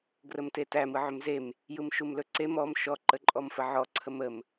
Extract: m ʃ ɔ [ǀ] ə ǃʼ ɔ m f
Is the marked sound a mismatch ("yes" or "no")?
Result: yes